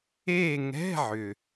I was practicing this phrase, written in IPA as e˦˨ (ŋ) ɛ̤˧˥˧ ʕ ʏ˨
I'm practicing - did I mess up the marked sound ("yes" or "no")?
no